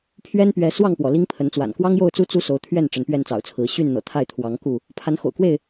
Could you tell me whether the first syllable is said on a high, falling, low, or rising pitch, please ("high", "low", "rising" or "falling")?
high